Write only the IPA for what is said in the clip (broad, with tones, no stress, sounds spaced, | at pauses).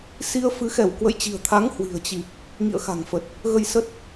s i˧ ə̯ f ɨ˨˦ x ɛ˧˩ w k w ə̰˧˨ j t͡ɕ i̤˨˩ ə̯ t̪ʰ a˨˦ ŋ h w i̤˨˩ ə̯ t͡ɕ i˨˩ p̚ | ŋ ḭ˧˨ ə̯ x a̤˨˩ ŋ f ə˨˩ t̚ | ɣ ə˧ j s ə˦˥ t̚